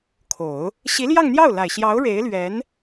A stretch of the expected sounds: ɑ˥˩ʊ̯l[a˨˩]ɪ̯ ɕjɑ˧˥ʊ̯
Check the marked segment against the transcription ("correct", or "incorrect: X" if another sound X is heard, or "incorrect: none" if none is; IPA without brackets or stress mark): correct